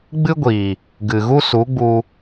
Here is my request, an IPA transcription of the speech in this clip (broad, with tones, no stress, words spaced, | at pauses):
ɡ͡bɨ˦ɡʷiː˨ | ɡɨ˨ɣu˦su˨˦ɡ͡bu˧